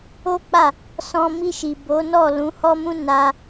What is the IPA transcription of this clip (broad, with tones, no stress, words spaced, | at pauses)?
o˦k͡pa˦˨ | sɔ̃˧ mi˧ʃi˨ bo˨˦nɔ˦˨ lũ˨˦hɔ˦mũ˦ na˧